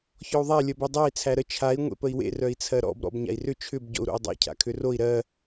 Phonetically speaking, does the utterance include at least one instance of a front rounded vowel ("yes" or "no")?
yes